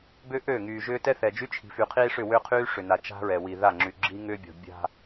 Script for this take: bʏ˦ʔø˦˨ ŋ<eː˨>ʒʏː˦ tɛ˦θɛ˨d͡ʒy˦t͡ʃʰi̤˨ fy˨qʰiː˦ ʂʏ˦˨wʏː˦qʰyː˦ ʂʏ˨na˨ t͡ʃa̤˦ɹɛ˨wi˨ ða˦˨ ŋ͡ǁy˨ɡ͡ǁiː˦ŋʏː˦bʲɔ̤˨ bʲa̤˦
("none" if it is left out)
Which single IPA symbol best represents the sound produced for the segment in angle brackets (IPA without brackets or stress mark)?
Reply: yː˨